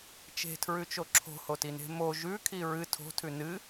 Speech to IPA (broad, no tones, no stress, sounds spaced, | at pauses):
t͡ʃ e̤ tʰ ɹ ʉ t͡ʃ o ǁʰ o̤ h o t i n e̤ m o ʒ ʉ kʰ i ɹ ɨ tʰ o̤ tʰ ʉ n ɨ